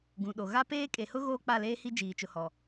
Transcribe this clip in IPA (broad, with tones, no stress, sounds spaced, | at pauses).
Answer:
ɡ ũ˨ ɗ o˨ ɣ a˦ p eː˦ kʼ e˨ h ʊ˦ ɣ oː˦ k͡p a˦˨ l eː˦ h i˦ d͡ʒ iː˨ t͡ʃ ʊ˨ h ɔ˨